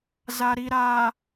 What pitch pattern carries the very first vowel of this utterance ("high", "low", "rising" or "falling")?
low